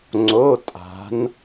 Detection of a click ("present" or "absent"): present